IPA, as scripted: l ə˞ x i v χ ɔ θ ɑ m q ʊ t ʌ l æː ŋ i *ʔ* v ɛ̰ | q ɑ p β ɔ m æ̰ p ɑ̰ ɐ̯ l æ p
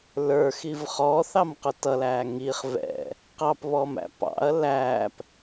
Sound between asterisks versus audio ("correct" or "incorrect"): incorrect